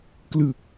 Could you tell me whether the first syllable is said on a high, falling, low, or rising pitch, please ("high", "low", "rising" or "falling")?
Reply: low